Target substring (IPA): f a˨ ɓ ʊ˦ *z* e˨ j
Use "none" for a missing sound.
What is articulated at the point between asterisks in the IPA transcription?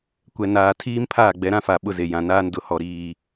z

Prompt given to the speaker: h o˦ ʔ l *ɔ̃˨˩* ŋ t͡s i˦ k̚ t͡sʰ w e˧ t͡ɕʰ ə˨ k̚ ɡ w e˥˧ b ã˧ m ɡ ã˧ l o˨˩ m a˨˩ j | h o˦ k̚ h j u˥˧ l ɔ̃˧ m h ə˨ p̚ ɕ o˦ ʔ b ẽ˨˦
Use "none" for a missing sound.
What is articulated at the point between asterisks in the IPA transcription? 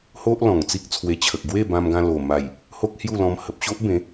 ɔ̃˨˩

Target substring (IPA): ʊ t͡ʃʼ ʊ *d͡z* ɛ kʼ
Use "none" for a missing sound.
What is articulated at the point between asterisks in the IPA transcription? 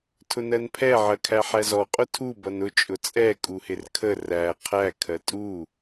t͡sʼ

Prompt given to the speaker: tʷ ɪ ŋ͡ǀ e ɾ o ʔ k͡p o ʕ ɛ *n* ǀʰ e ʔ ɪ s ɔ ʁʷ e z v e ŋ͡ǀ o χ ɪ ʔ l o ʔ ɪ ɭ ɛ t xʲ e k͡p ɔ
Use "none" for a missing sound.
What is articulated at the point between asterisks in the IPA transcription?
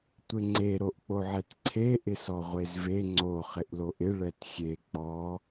t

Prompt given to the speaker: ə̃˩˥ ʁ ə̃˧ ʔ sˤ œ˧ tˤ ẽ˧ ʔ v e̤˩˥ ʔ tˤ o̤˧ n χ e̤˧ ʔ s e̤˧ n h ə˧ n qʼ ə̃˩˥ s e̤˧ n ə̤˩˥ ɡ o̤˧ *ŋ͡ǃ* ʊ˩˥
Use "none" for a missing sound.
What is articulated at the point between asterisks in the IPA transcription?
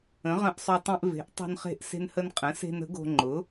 ŋ͡ǃ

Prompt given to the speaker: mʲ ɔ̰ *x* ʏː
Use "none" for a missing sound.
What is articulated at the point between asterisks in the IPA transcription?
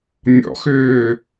x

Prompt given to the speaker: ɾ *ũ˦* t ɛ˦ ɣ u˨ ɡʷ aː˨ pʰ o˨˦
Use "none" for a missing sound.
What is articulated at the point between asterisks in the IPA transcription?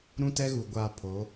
ũ˦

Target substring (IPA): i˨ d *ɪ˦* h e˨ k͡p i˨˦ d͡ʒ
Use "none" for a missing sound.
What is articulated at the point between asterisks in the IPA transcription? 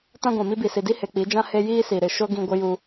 i˦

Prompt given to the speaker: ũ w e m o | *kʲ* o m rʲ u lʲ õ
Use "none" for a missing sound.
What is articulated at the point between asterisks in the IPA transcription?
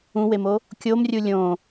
kʲ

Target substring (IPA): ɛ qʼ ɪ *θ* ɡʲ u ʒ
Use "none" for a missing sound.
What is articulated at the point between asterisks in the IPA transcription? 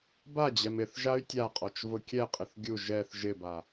θ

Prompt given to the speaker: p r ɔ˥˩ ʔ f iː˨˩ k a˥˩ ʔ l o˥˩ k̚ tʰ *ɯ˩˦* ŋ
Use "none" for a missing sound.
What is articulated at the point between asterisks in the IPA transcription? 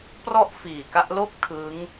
ɯ˦˥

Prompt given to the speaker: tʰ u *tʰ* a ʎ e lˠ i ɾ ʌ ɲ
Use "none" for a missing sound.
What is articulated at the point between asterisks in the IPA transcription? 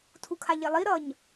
kʰ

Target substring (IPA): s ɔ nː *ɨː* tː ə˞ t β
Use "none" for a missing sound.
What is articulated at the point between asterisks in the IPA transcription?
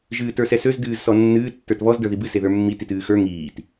ɨː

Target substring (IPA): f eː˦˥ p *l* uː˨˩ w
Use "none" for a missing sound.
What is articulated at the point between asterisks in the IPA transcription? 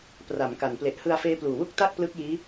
l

